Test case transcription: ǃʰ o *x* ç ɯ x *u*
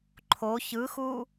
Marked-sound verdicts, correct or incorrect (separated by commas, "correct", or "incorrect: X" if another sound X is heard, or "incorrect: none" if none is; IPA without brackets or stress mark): incorrect: none, correct